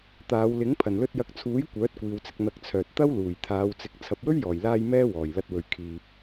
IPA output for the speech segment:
t̪aː˨˧wlɪ˨˥ŋ pʰɐ˨˩nlɵ˧t̚jɐ˨˥k̚t͡sʰuː˨˥j kʷœː˨˥t̚kʷiː˨wt͡sɪ˧k̚ n̪ɐ˧k̚t͡sʰœː˨t̚ t̪ɐ˥wluː˨˩j t̪ʰaː˨˧wt͡sɪ˨˥k̚ t͡sʰɐ˨p̚wɵ˥ɥjɔː˨˩jlaː˧j mɛː˥wɔː˨˩jlɐ˧t̚wɵ˨ɥ kʰiː˨p̚

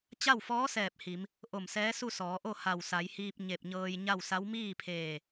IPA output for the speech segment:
t͡ɕa˥˨wfɔː˧˥ sɛː˧˩p̚ hi˩˧m | ʔo˧˩msɛː˧˥su˥˨ sɔː˩˧ʔo˥˨ ha˧˩wsa˩˧jhiː˧p̚ ɲe˧˩p̚ɲɤː˧j ɲa˥˨wsa˧˥w miː˥˨pʰeː˧˩

